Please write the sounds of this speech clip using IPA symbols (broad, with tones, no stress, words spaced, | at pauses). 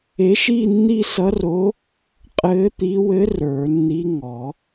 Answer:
e˧˥ʃiː˥˧ nːi˥˧sʌ˧˥ro˧˥ | qʼɘː˧˥t̪i˧˥wɘ˧˥ rə˞˨˩˦nːi˧˥ ŋɔ˨˩˦